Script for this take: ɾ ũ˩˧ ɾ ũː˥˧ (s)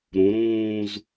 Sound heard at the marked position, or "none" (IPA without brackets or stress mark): z